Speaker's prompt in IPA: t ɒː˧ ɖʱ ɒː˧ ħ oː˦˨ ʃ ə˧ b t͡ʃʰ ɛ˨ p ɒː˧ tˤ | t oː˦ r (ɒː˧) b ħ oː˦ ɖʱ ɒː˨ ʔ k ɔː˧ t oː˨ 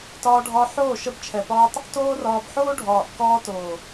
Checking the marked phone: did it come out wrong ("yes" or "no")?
no